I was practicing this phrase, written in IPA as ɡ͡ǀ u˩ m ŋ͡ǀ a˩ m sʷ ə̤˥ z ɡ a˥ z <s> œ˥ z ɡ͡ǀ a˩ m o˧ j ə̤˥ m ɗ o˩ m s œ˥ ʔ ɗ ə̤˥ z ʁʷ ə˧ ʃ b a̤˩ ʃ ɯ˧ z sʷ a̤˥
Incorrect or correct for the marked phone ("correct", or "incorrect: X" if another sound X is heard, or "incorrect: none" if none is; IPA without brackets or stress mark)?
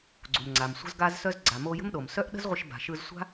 correct